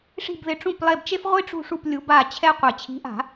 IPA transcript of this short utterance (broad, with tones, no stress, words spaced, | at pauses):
ʂi̤˦˨bðɪ˨˥ʈ͡ʂũ˦˨p lˠe˦˨bt͡ʃe˥f ʁʷi˥ʈ͡ʂṳ˦˨ʂu˦˨p lʲu˨˥ba˦˨ t͡ɕʰɛ˥qʷe˨˩˦ t͡ɕʰi̤˨˥ʔa̤˨˩˦